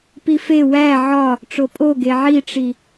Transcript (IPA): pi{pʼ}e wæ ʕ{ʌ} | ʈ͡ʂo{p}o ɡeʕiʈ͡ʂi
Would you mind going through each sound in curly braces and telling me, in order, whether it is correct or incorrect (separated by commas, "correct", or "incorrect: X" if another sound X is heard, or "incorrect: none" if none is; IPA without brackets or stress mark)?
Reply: incorrect: f, incorrect: ɒ, incorrect: pʼ